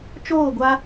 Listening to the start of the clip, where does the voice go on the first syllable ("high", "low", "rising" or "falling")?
falling